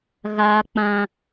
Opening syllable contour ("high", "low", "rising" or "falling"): high